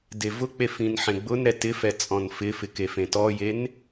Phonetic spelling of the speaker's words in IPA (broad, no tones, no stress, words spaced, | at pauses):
devʊk͡pe fĩnħẽɡ͡bʊnɾɛ tɪfɛ t͡sʼɔ̃nfɪfɪ kefẽtɔjen